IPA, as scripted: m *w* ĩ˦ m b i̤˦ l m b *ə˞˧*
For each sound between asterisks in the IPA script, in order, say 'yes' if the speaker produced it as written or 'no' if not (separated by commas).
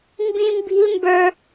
no, yes